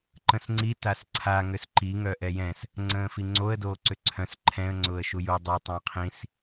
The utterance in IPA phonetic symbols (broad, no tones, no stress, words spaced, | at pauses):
ǃə̃sŋ͡ǀi tasǀʰa ŋʏsǃi ŋœʔɛjɛ̃s | ŋ͡ǀə̃ːfiŋ͡ǀoə̯ doːǀʏǀʰœ̃s ǃʰɛ̃ə̯ ŋ͡ǀʊːə̯ʃuju dˤo tˤə̃ːqʰĩs